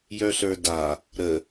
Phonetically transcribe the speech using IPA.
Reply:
jœɬə˞da | ɾə

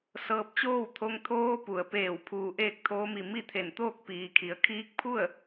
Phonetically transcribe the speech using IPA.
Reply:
sɤː˧p̚t͡ɕoː˥˨wt̪ʰo˧ŋ t̪ʰoː˧pu˩ə̯peː˧˩w pʰuː˧˩ʔeː˥˨k̚t̪ʰoː˧˥mi˧˩ mi˥˨t̪ʰe˧˩nt̪oː˥˨k̚ piː˩kʰi˩ə̯ kʰiː˧˥k̚pʰu˥˨ə̯

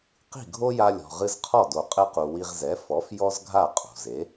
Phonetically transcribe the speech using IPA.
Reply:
qi̤˥˩ɡʱo˥ja˧lʲɔ̤˩ ʁɨ˧zqʰɔ˥˩do˩ qʼɘ˧qu˩ wi˧ʁzɛ˩˥ fɔ˩˥f jɔ˥zɡʱa˥˩qʼṳ˩ze˩˥

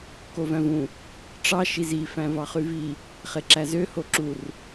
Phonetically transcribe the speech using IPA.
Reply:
kovæ̃vũ | ʈ͡ʂɑ ʃizi fæ̃vɑχyvi | χeǁæzø hoǁur

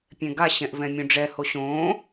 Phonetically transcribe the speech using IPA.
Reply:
pʲɛ̃ɡa ɕɛ̃ʔvɛ̃mʲõɖ͡ʐɛ hoɕõː

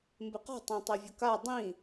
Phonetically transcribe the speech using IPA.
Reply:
mbɪqɔ̤ tˤãtˤevʲʊka dˤĩ

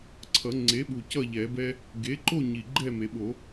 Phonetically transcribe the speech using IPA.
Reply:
ǀʰʌ˨˩˦ŋ͡ǀe˩˥ɓu˨˩ cʌ˥˨ʎɛ˨˩˦bɛ˦ | ɡe˩˥ǃo˥˨ ɲi˨˩ɡ͡ǃɛ˥˨me˨˩˦ɓo˨˩˦

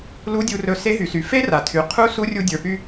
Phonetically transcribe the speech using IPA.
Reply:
lu˧˥dʲu˧rɵ˧ se˧˥ɦy˩˧sy˩˧ fe˥ra˩ tʰy˩ qʰu˧˥ su˧˥rʲu˧dʲə˞˩ py˧

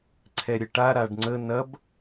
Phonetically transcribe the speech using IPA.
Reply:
ǀʰɛɾʲəʈa ɾaɖŋ͡ǀə nɐb

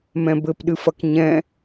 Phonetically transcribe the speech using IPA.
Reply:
mɛ̃bɘpɗɨfɐk ɲɛ̃

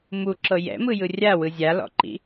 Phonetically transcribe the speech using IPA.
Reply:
muǁɤ jɛ̰mɯjɯ rʲawɯ zʲalɔ̰ǃḭ

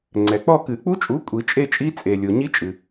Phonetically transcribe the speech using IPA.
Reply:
ŋ͡ǀɛ˩k͡pɔ˥˧ kɨ˨˩˦k͡pu˦˥t͡ʃʼu˨˥ kʷʼi˨˩˦t͡ʃʼe˥˧t͡ʃʼi˦˥ t͡sʼe˩lʲo˩ ɲi˦˥t͡ʃʼɨ˩

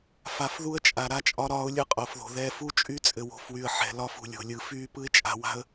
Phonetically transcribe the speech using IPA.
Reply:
fa˨fðu˦ə̯t͡ʃʼa˨ ɾa˦t͡ʃʼɒ˦ɾɒː˦ʊ̯ lʲɯ˦qʼo˨˦fðo̤˨ ðɛː˦f u˦t͡ʃʼy˦ t͡sʼɘ˨wo̤˨˦fwy˨ə̯ ħɛ̤˨ lɒ˦fṳ˨ lʲo̤˨lʲɯ˨ fyː˦pɯ˦ɪ̯t͡ʃʼa̤˨ wa̤˦ə̯

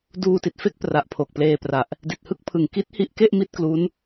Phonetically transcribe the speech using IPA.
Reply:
duː˧ti˨˩t̚fe˥˩k̚pra˨˩ʔ pʰo˨˩k̚pleː˧pra˨˩ʔ | di˨˩t̚hɯ˥˩k̚pʰɯ˨˩ŋ ki˦˥t̚hi˦˥ʔke˥˩ʔ mi˥˩t̚klu˦˥n

